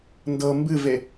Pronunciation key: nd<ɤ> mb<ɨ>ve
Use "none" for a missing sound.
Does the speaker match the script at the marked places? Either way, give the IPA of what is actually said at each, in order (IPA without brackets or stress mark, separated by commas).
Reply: ɤ, ɨ